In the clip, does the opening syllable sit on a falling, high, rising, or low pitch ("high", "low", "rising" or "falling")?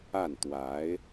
falling